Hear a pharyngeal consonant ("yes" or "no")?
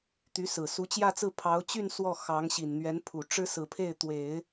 no